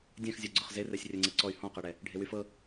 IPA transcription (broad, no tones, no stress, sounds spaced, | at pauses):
dʲ ɛ̃ x zʲ ɜ ɡ͡ǀ ʊ χ z e r ɛ sʲ rʲ ɜ ŋ͡ǀ ɛ ǀ ɔ y̯ h ɔ̃ q ɛ ɽ ɛ | ɖʱ e w y f ɤ